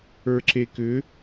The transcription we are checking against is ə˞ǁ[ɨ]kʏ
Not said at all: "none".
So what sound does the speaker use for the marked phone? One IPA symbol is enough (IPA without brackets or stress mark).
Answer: e